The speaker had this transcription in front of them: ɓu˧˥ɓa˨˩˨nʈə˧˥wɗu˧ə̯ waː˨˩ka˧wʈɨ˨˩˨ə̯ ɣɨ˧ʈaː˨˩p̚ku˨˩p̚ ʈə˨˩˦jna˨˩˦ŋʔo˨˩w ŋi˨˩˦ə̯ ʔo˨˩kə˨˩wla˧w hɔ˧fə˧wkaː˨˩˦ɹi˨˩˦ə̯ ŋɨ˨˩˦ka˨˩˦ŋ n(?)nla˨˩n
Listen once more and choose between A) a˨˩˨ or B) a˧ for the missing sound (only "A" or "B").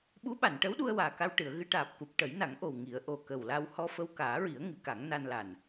B